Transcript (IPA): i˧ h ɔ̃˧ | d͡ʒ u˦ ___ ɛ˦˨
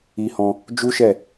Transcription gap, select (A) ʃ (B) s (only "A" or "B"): A